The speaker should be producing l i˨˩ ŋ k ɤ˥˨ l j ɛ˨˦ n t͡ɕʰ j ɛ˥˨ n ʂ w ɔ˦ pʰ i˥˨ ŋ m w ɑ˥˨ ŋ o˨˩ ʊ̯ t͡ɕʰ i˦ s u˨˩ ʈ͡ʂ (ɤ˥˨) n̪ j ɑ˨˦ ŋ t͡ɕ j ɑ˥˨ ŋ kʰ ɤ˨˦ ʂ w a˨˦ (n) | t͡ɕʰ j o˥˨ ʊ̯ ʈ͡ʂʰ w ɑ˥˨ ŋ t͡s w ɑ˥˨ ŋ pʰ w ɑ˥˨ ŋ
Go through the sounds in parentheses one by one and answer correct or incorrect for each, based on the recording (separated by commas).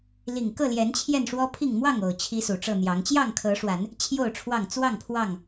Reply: correct, correct